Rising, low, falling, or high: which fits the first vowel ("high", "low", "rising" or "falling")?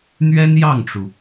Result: high